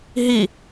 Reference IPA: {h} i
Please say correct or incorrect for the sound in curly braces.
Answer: incorrect